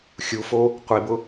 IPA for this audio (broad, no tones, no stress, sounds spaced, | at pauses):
xʲ u f o | qʷ i b ʊ